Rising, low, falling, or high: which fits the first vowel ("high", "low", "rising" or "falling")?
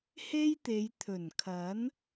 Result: high